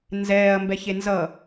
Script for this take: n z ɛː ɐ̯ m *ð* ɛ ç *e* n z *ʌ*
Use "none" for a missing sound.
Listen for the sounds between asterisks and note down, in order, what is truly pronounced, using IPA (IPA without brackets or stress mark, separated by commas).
b, e, ʌ